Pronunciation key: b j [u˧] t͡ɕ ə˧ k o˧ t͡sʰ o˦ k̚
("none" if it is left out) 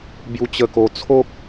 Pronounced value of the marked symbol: u˧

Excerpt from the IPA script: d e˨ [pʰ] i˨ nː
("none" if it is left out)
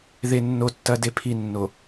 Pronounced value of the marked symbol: pʰ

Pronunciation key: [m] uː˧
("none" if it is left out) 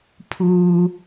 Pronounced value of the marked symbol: pʰ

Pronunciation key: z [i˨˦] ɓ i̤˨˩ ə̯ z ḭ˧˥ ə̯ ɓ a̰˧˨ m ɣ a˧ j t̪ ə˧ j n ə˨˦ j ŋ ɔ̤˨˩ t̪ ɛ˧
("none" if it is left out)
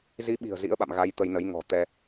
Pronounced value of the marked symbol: i˨˦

